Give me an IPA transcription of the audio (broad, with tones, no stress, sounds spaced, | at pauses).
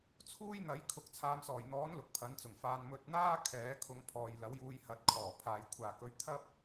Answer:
t͡sʰ uː˥ j n̪ ɐ˨˥ j kʰ ʊ˨˥ k̚ t͡sʰ aː˨˧ m s ɔː˨˩ j n̪ ɔː˨˥ n l ʊ˨ k̚ pʰ ɐ˨˥ n t͡s ʊ˨˩ ŋ f aː˧ n m ɵ˨ t̚ n̪ aː˥ kʰ ɛː˨˥ kʰ ʊ˧ ŋ pʰ ɔː˨ j l ɐ˨˥ w j uː˧ j h ɐ˨˥ t̚ kʰ ɔː˨˩ pʰ aː˨ j kʷʰ aː˨ k ɵ˧ ɥ t̪ʰ ɐ˥ p̚